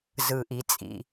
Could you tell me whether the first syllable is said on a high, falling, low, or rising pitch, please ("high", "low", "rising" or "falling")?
low